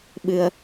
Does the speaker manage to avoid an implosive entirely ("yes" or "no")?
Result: no